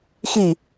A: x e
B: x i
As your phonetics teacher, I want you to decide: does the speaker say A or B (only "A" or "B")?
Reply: B